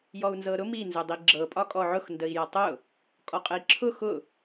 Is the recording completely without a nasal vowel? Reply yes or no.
yes